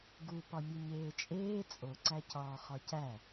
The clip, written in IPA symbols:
ɡupɒ mʲeɲeːt͡ʃʼeː t͡sʼoǀæcɒː χɒcæ

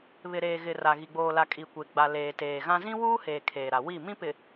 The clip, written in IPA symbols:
βɪ˨ɾeː˨ɣɪ˨ ra˨ɣi˨ ɡ͡boː˨la˨ kʼi˨kʷe˨ɡ͡ba˨ leː˨teː˨ɣã˦ zĩ˦wuː˦heː˨ kʰeː˨ɾa˨wi˦˨ mĩ˦pɪ˨

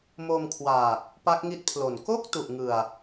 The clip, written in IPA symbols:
mo˧mkʰwaː˨˩k̚ | pa˦˥k̚ŋi˦˥t̚pʰlo˨˩n ko˥˩k̚ tu˨˩ʔŋɯ˨˩a̯

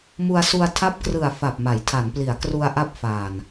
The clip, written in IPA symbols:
mu˧a̯su˧a̯tʰa˦˥p̚krɯ˨˩a̯ fa˨˩p̚ma˩˦jtʰa˩˦npli˩˦a̯ kru˧a̯ʔa˦˥p̚faː˨˩n

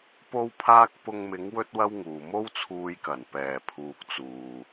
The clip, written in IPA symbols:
po˥wpʰaː˥k̚ pʊ˧ŋmɪ˨˥ŋ wɵ˥t̚wɐ˥wŋuː˨ mo˥wt͡sʰuː˧jkɐ˨˩n pɛː˨˩pʰuː˨k̚ t͡suː˨

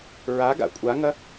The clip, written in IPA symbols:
ɹaɡa̰ kʷʼaŋɐ

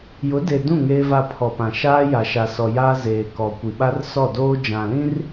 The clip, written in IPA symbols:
jʊ˨˦de˨dũ˦˨ ŋeː˦va˦˨pʰɔ˨pã˨ ʃaː˦ja˨ʃa˨sɔ˨ ja˦ zeː˨kɔ˨kʷi˨ɓa˦r sɔ˦˨doː˦ d͡ʒã˨lĩ˦r

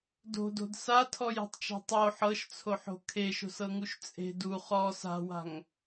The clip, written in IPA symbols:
do̤do̤d satʰɔje̤tˤt͡ʃa̤ tˤo ħɤʃt͡sʰoħo̤ kʰeʃo̤sɤŋuʃ t͡sʼe̤d u χɔ sa̤wa̤ŋ

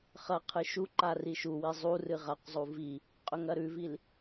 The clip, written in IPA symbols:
χɐ qʰɨʃuǃa riʃuwi zˤu rɨʁaqzˤu vi | qʼɵŋɐɾʉvil

